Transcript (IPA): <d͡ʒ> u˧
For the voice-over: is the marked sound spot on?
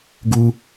no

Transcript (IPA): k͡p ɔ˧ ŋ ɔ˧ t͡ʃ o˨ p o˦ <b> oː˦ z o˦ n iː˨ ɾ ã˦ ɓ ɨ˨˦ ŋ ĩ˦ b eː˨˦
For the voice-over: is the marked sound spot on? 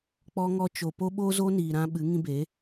no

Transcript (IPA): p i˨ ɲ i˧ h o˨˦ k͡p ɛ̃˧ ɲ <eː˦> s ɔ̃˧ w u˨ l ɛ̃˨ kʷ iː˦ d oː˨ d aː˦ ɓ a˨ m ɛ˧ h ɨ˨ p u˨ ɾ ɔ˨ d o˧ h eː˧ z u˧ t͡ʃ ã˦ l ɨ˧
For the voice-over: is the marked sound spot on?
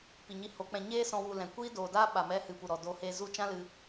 yes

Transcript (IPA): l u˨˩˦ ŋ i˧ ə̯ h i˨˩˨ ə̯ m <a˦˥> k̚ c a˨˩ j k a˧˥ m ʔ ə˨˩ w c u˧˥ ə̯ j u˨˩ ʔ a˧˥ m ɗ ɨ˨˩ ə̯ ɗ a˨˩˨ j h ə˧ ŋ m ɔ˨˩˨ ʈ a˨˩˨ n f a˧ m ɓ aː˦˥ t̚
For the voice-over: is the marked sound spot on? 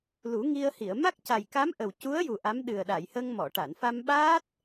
yes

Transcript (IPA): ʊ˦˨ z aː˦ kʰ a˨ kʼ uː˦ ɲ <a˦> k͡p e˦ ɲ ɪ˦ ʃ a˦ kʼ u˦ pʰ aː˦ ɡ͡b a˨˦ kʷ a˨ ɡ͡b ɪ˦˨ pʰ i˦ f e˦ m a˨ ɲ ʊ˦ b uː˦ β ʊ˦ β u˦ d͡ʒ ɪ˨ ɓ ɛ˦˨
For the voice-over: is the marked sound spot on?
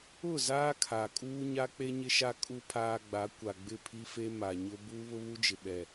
yes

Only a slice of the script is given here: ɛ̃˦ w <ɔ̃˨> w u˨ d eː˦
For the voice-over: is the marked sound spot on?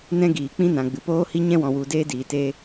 yes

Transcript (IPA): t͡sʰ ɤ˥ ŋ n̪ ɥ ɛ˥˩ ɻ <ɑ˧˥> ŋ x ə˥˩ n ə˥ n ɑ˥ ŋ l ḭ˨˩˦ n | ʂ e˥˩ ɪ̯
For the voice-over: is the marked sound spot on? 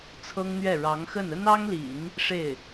yes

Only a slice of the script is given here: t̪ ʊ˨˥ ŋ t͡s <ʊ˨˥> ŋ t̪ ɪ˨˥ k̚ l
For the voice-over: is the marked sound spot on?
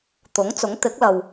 yes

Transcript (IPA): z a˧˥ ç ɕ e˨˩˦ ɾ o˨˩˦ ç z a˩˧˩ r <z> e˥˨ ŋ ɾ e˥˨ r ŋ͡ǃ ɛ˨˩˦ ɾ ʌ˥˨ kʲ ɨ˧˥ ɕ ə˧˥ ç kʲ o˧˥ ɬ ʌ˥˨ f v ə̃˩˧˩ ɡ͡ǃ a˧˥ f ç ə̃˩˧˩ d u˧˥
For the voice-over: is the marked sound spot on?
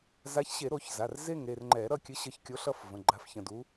yes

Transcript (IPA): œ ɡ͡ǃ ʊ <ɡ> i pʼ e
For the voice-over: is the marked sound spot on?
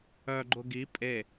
yes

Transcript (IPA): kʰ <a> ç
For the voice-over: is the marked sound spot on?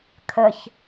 no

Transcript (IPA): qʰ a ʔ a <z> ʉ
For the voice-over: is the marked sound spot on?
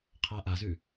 yes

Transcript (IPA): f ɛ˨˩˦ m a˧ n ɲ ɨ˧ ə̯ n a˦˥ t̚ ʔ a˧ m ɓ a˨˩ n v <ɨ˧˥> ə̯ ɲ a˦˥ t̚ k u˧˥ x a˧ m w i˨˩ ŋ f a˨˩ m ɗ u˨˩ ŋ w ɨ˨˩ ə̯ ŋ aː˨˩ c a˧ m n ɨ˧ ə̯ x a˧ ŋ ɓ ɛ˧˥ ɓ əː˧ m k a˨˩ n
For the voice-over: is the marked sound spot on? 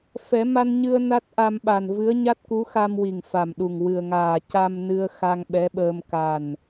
yes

